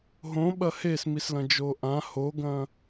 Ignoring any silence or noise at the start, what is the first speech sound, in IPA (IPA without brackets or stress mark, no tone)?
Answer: ɦ